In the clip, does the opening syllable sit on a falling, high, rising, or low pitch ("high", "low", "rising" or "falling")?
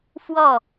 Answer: falling